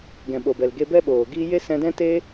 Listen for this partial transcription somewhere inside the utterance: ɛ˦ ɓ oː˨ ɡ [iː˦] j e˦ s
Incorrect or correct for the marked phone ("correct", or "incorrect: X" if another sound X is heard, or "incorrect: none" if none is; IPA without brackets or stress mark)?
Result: correct